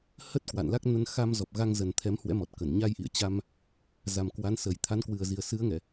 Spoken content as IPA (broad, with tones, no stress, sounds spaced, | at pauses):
h ə˦˥ t̚ k w a̰˧˨ n l a˦˥ k̚ n ə˧ n x a˧ m z ɔ˨˩ p̚ ɣ a˧ ŋ z ə˨˩ n t̪ʰ ɛ˨˦ m h w ɛ̰˧˥ m ɔ˨˩ t̚ k ə˧˩ n ɲ a˧ j ʔ ḭ˧˨ ə̯ t͡ɕ a˧ m | z a˨˩ m k w a˨˦ n s ə˨˩ j t̪ʰ a˨˦ n k w ɨ˨˩ ə̯ z i˨˩ ə̯ s ɨ˨˦ ə̯ ŋ ɛ˧˩˨